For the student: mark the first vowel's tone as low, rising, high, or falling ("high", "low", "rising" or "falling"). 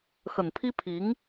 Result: low